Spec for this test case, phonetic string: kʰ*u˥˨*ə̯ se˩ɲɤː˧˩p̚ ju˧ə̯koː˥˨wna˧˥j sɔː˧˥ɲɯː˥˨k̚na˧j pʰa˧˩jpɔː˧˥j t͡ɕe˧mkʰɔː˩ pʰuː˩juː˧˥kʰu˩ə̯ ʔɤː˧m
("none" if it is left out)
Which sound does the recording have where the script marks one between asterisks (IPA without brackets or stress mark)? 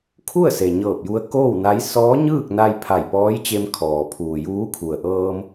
u˥˨